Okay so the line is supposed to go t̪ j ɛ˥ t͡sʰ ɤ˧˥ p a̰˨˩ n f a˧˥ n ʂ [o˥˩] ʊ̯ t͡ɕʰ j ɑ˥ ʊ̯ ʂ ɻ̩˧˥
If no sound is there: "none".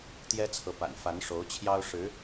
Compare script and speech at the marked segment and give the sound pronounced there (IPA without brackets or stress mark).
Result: o˧˥